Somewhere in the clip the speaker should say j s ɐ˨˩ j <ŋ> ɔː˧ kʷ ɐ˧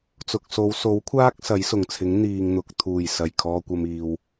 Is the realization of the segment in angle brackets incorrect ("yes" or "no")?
yes